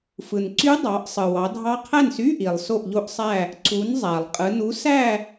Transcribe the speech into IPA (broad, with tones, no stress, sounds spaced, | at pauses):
f ɯ˩ n ǀ y˦˥ dˤ ɑ˩˧ ʔ sˤ ɯ˩ w ɑ˩˧ dʱ ɑ˦˥ qʰ æ˥˨ n s y˧˥˧ ʔ i˩ lˠ s o˥˨ ʔ ʎ o˦˥ ʔ sˤ æ˥˨ | ǀ u˩˧ n zˤ æ˩ lˠ qʼ ɯ˩˧ n u˨˥ s æ˥˨